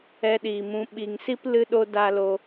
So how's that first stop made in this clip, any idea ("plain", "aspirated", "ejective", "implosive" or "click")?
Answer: implosive